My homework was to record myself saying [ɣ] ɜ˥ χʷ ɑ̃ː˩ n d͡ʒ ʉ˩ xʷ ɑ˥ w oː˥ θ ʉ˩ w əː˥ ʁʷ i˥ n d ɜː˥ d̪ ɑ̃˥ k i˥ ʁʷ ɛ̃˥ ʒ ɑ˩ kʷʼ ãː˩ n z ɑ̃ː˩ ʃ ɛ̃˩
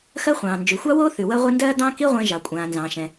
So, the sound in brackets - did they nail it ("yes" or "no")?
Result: no